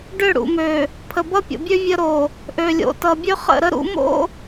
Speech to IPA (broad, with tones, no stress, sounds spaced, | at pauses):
ɖ ø˦˨ ɽ ṵ˨ m ø˨ | pʰ ə˨ b ʌ˦ pʲ o̰˨ bʲ ø˦ vʲ ə˦ ɾ o˨ | ʔ ø˨ lʲ o̰˨ t ʌ˨ bʲ ø˦ χ ə̰˦˨ ɾ ə˦ ɾ ṵ˦ m o̰˦